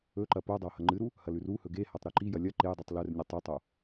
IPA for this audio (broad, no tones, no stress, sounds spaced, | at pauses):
ɵ ǃ ɐ p o dˤ ɐ w h ɐ ŋ͡ǃ ɨ ɾ u | h ɐ l ʉ r u h ɵ ɡ e h a tˤ ɾ ɵ ǃ i j ɐ lʲ ɐ ǃ e j dˤ u tˤ l ɵ r nʲ e tˤ e tˤ o